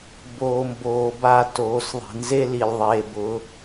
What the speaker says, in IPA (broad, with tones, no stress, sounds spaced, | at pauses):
b oː˨ m b oː˨ b a˦˨ t oː˨˦ s ðˤ i̤˨ n z e˦ l i˨ lʲ ðˤ eː˨ b ʊ˨˦